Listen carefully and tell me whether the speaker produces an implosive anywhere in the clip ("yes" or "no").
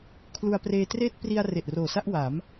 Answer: no